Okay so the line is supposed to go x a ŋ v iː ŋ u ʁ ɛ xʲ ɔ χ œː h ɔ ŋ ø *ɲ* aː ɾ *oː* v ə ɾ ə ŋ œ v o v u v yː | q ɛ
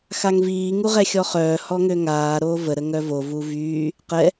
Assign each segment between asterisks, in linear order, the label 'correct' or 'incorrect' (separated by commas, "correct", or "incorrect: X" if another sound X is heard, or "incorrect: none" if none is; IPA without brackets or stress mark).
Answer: incorrect: ŋ, correct